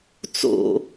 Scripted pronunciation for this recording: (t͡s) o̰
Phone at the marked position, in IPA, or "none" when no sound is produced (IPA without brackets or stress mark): t͡s